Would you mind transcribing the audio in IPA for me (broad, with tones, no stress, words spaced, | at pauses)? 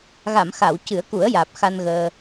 ɣa˨˩˨mxa˨˩˨w cɨ˨˩˦ə̯ku˨˩˦ə̯jaː˨˩p̚ xa˧nɣəː˧